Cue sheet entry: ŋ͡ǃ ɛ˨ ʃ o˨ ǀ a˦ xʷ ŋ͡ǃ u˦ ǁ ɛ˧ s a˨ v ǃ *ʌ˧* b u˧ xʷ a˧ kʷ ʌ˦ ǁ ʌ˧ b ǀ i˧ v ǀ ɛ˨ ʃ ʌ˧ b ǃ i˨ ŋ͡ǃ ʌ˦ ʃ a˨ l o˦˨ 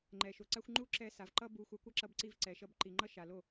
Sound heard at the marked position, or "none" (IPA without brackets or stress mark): ʌ˦